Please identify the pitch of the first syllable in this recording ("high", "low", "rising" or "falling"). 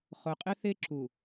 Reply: low